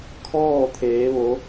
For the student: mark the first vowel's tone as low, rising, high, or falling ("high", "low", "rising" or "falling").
falling